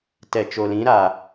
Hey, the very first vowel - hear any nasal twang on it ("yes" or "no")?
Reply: no